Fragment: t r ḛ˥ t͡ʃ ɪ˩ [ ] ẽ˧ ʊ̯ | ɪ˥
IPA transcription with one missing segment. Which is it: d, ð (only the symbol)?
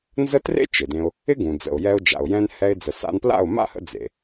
d